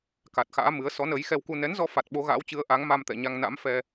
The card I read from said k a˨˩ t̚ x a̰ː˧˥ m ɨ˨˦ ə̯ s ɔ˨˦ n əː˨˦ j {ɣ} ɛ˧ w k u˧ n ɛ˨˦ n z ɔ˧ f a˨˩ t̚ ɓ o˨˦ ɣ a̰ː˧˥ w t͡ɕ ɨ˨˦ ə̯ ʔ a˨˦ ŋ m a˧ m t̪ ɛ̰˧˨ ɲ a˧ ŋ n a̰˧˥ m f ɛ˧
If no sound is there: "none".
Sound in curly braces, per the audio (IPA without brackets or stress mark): x